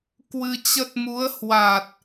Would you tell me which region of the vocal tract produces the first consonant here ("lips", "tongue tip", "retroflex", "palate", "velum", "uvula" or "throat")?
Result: velum